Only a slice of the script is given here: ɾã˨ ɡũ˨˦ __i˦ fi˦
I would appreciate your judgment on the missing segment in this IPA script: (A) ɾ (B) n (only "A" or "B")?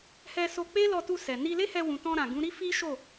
A